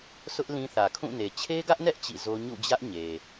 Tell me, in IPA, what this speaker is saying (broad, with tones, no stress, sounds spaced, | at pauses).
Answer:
s ʊ˦ ʔ l ĩ˦ θ ä˨ kʰ ũ˦˨ n e˨ t͡ɕʰ e˦ ɡ ä˦ ʔ n ɛ˦ ʔ t͡ɕ ḭ˦˨ z o˦ ɲ ṵ˦˨ d͡ʑ ä˦ ʔ ɲ e˨